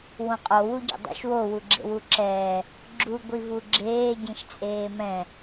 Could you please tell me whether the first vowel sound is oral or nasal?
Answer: nasal